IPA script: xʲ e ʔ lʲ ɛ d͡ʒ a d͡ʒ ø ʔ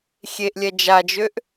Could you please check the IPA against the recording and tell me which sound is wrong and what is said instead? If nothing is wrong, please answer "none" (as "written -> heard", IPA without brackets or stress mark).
none